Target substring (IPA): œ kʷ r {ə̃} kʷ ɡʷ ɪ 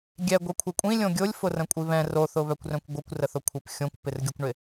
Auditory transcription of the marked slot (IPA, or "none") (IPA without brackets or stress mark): œ̃